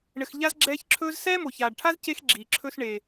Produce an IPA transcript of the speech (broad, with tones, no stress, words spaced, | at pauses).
ɳɘ˧xʎa˦zɡ͡ǁɛː˦çǁʰɵː˦z sɛː˦mo˨çaː˨ɖʈʰa˦z ce˦x ɡ͡ǁi˨ǁʰɵ˦s ɳe˧